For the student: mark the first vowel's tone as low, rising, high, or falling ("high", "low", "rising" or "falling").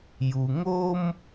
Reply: low